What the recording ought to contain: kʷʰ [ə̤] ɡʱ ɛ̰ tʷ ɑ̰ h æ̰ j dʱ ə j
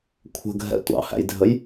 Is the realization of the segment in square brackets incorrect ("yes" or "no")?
no